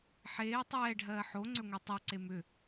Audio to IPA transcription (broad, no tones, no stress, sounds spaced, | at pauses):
ħ eː tˤ ɛː ɖʱ ɜː ħ o ŋ͡ǀ ʏ ŋʷ e tˤ ɜ ǀ e m ʏ